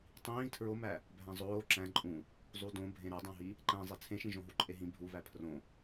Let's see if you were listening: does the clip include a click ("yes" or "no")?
yes